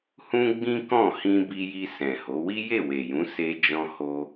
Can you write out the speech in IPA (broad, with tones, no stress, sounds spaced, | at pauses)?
h ũ˦ ɡ͡b ĩ˦ k ɔ̃˦˨ h ĩ˧ b i˧ j i˧ s ɛ̃˨ h o˨˦ w i˦ j e˦˨ w e˨ j ũ˨˦ s e˧ d͡ʒ ɔ̃˧ h o˧